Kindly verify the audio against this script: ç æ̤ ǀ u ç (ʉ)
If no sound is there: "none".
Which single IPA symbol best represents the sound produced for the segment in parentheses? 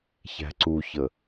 ə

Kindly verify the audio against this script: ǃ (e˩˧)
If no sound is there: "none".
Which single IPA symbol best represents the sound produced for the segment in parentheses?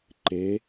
e˩˧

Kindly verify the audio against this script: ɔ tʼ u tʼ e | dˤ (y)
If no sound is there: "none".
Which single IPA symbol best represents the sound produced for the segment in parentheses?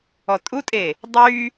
y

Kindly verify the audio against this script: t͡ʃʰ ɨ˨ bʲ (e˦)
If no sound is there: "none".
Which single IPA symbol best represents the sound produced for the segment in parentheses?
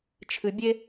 e˦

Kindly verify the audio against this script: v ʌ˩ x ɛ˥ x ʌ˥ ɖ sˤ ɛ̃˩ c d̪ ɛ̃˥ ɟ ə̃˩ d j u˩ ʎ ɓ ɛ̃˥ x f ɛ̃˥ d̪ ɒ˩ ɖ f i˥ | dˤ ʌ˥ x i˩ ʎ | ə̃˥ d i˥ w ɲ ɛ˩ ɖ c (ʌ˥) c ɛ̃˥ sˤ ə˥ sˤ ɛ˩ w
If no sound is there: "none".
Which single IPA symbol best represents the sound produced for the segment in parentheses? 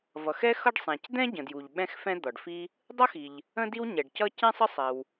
ʌ˥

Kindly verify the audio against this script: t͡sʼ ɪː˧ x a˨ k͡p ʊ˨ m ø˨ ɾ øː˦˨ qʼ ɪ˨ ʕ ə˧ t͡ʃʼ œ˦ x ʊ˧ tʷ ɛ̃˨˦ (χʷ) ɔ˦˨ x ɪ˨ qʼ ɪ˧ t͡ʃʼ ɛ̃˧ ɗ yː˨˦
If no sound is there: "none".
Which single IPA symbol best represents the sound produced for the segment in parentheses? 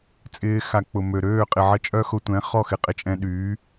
χ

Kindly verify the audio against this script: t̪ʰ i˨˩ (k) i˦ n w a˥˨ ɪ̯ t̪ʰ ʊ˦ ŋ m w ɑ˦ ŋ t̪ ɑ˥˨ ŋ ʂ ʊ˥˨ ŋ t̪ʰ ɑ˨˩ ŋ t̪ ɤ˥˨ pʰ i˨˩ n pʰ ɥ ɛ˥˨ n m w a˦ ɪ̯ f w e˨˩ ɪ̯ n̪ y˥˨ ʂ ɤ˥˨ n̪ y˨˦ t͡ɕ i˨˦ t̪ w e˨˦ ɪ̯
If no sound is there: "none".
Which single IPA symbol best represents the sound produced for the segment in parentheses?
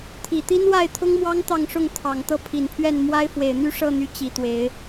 t̪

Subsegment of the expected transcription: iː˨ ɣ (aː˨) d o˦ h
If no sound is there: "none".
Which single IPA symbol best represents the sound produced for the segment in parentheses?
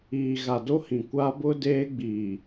a˨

